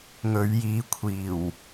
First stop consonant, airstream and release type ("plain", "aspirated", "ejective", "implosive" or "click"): aspirated